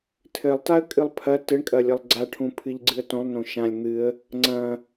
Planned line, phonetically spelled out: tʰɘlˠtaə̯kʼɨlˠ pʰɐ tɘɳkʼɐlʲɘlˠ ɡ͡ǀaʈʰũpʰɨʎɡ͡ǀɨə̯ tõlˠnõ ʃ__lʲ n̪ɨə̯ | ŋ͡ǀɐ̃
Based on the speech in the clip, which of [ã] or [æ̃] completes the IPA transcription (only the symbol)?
ã